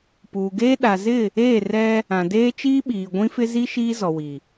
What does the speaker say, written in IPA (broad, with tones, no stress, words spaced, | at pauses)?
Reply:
puː˨ɡeː˦ ɗa˨zɪ˦˨ | eː˦˨rɛ˦ | ã˨deː˦ t͡ʃiː˦ɓiː˨ ɡʷĩ˦fɪ˦ zi˦ ʃiː˦zɔ˨wi˨